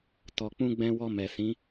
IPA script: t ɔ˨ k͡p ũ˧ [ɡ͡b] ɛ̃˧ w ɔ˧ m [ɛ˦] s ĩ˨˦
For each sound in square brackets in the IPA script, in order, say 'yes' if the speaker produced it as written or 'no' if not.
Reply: yes, no

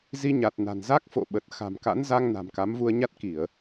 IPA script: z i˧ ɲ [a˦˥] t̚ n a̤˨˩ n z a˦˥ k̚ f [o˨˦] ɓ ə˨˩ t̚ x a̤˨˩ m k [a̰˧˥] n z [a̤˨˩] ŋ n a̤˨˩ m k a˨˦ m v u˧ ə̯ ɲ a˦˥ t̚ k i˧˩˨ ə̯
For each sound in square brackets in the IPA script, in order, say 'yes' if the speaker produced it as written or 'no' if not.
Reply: no, no, yes, no

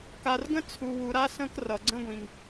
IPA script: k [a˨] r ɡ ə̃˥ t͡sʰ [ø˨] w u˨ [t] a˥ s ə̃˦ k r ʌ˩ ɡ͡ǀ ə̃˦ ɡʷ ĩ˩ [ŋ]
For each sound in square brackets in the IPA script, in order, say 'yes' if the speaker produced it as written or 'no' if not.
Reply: yes, no, no, yes

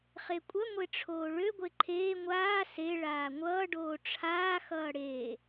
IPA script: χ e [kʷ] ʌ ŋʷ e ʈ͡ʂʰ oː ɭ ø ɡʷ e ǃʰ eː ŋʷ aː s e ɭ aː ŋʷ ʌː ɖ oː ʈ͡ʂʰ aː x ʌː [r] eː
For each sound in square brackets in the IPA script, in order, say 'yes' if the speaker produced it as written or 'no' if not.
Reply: no, no

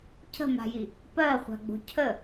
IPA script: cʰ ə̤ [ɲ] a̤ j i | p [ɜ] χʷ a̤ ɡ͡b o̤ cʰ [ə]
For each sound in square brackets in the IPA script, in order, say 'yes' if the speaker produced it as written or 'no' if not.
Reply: no, yes, yes

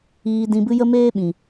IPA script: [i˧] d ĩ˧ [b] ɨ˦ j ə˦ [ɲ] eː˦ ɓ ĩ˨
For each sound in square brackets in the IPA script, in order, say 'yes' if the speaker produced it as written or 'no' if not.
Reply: no, yes, no

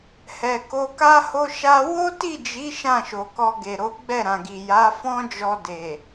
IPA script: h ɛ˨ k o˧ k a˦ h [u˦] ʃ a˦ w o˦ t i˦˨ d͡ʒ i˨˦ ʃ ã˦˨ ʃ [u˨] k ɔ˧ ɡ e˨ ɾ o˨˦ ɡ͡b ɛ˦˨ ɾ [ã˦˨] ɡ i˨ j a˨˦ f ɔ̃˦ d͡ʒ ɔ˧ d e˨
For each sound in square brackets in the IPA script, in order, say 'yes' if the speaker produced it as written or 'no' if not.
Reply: no, no, no

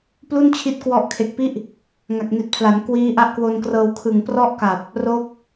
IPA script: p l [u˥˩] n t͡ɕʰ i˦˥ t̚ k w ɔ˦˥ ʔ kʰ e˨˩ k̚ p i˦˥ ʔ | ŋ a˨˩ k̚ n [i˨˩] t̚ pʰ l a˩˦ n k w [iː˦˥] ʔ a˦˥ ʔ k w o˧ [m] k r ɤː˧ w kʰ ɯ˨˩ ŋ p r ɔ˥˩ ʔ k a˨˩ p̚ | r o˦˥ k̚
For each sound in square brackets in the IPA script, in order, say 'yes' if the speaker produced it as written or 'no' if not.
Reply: yes, yes, yes, no

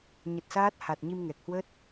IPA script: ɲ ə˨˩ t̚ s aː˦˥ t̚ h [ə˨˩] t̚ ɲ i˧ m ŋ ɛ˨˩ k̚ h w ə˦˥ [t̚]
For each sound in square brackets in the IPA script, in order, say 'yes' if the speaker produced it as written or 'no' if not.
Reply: no, yes

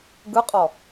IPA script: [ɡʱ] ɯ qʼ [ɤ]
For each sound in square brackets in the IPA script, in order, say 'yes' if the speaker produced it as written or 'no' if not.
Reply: no, no

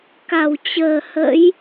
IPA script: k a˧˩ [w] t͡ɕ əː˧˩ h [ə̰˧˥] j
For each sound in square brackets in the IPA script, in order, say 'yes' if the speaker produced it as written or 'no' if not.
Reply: yes, yes

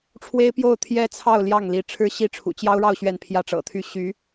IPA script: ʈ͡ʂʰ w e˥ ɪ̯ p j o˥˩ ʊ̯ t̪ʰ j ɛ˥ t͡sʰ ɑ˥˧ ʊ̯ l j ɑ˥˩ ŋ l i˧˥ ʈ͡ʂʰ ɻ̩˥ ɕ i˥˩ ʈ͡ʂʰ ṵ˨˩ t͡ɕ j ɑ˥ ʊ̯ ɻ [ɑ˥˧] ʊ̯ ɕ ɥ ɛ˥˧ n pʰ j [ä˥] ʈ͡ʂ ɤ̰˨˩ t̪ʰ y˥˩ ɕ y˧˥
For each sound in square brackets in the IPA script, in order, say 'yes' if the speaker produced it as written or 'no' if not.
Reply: yes, no

